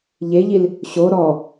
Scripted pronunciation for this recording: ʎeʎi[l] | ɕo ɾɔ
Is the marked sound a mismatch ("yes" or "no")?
no